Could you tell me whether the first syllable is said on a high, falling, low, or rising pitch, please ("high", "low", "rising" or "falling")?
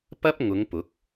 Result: high